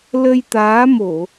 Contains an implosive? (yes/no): no